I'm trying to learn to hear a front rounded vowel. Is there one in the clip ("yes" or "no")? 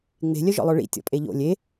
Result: yes